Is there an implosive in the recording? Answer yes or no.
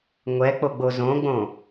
no